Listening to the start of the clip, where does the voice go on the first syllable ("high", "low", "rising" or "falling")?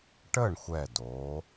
falling